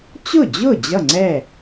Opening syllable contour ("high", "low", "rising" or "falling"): falling